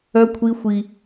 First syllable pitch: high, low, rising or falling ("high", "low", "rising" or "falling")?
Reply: high